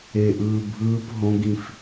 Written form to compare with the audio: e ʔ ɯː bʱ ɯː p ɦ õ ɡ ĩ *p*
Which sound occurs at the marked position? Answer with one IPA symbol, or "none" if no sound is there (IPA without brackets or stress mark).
f